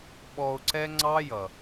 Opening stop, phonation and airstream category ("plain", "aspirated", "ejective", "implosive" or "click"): implosive